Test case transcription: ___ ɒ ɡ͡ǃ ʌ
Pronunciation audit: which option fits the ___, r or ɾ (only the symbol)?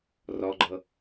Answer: r